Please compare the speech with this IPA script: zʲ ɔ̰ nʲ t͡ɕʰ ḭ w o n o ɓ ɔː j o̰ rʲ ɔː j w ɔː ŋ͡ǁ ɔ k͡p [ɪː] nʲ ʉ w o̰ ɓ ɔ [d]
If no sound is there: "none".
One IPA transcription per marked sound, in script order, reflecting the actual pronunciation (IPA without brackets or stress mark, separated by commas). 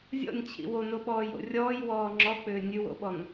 ʏː, n